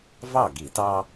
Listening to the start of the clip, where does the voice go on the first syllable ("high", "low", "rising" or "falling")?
falling